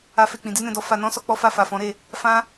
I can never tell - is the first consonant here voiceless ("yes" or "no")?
yes